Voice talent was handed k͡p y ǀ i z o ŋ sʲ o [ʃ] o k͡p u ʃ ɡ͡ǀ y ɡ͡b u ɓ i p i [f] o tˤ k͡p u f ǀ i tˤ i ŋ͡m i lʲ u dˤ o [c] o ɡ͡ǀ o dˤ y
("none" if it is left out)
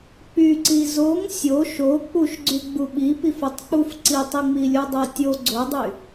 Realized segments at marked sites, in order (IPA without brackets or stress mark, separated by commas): ʃ, f, tʲ